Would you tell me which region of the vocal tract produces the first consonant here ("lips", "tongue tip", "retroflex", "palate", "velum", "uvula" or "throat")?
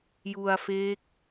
palate